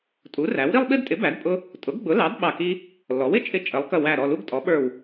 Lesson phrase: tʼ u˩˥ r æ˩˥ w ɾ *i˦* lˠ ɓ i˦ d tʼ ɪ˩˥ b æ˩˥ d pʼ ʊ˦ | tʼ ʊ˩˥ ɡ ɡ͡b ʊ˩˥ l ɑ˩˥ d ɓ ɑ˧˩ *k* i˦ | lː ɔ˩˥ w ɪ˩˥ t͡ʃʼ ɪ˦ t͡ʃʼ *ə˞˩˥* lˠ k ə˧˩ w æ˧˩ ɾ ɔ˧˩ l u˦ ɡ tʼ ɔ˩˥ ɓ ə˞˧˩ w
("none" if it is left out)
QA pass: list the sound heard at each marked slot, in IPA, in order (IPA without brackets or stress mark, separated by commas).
i˦, k, ə˩˥